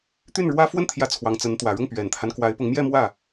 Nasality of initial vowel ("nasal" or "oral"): oral